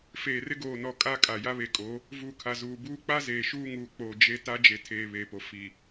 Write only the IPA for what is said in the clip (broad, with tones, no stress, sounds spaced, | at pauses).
f eː˨ r ɪ˦ ɡ oː˨ n ɔ˨ kʼ a˦ kʼ a˨ j a˦ β e˨ kʼ o˨˦ | v uː˨ kʰ a˨ z uː˨ b uː˦ k͡p a˦ z eː˨ ʃ uː˦ ŋ uː˨ k͡p oː˨ d͡ʒ e˦ t a˦ d͡ʒ e˨ tʰ eː˨ β eː˨ p o˨ f i˨